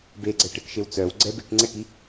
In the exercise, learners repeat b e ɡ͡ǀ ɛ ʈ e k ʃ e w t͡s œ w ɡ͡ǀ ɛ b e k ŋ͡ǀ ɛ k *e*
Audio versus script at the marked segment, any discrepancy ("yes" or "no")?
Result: yes